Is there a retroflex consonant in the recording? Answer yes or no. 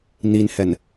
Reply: no